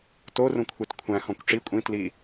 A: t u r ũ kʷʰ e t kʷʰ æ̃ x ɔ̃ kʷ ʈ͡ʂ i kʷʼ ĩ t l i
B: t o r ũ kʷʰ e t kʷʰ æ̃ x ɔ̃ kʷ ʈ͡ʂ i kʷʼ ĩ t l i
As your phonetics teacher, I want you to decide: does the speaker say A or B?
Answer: B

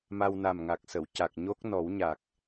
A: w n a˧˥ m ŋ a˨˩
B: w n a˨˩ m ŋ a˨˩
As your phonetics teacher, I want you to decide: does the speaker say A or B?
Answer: B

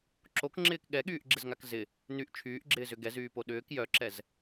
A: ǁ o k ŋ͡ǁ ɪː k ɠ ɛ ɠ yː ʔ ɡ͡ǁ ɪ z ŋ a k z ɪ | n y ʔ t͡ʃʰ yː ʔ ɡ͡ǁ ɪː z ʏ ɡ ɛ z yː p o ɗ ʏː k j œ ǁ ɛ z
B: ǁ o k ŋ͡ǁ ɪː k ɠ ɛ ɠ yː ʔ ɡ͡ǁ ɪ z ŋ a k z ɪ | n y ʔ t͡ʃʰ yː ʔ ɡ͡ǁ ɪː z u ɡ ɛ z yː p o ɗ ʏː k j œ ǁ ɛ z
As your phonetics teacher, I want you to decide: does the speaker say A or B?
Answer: A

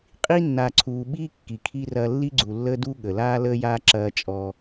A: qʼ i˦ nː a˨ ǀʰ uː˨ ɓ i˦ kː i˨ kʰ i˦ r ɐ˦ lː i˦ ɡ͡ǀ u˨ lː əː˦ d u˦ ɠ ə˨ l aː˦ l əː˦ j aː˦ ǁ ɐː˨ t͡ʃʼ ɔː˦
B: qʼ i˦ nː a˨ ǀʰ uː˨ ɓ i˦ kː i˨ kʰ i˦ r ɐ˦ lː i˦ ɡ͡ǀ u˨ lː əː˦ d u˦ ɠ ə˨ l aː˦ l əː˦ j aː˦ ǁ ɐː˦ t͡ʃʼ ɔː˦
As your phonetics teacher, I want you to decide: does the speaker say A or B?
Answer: B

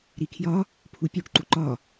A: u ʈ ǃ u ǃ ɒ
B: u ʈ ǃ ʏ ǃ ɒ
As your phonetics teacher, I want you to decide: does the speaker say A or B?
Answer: A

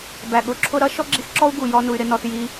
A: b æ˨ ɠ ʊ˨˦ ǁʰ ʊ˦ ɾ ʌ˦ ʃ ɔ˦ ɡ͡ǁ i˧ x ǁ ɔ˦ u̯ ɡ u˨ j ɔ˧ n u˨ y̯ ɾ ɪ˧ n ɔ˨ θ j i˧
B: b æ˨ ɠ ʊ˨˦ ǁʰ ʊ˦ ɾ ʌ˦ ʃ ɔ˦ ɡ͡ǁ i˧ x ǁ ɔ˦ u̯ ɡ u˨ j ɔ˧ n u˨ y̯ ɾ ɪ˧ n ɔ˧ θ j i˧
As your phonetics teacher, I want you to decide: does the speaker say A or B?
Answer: B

